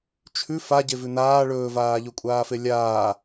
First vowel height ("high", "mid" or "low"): high